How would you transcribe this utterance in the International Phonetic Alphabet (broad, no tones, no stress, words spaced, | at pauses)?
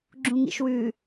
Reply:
ɡ͡ǁũŋḭʃwʉ